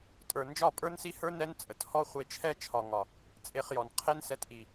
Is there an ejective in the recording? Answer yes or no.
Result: yes